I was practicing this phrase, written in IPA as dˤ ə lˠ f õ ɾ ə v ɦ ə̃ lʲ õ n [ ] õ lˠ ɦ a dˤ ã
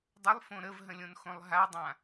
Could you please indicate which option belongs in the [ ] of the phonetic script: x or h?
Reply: x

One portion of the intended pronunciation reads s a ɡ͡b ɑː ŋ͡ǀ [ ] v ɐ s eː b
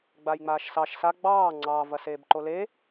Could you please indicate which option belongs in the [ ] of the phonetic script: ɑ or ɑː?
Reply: ɑː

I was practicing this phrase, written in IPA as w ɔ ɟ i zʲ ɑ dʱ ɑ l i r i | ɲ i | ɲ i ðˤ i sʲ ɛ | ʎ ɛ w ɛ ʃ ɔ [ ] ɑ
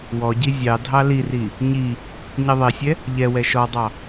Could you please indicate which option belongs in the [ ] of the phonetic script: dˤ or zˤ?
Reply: dˤ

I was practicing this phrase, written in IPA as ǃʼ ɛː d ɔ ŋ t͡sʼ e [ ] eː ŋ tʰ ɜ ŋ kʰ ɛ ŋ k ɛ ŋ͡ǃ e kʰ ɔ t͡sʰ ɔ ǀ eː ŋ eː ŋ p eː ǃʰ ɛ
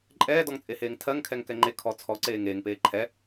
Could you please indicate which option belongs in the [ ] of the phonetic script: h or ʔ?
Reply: h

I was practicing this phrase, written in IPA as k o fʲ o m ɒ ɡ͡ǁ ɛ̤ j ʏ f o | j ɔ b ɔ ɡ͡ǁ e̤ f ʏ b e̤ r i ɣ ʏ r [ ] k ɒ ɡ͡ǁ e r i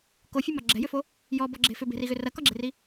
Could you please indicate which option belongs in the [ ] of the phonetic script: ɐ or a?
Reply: ɐ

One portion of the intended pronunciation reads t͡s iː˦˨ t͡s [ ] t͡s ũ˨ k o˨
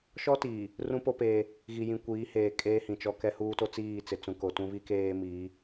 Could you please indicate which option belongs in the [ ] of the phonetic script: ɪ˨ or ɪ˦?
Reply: ɪ˨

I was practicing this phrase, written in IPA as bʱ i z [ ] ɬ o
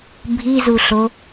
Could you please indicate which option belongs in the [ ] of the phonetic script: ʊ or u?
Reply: u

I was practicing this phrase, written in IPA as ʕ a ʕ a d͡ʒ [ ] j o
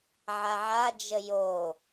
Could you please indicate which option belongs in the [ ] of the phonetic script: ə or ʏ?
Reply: ə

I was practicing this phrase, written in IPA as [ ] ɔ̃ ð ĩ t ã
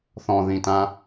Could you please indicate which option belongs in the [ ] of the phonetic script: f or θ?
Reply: θ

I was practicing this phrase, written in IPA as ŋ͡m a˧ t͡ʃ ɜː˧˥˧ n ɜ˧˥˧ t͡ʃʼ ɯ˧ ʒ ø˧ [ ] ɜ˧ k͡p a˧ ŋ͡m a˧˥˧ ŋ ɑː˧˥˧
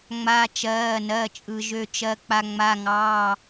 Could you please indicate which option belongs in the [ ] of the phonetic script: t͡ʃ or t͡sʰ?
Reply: t͡ʃ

